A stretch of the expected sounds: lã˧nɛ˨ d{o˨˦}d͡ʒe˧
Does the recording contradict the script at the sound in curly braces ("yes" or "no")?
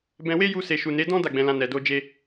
yes